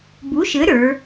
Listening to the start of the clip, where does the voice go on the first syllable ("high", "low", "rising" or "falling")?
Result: rising